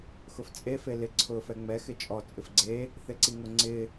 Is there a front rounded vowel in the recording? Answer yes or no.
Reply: no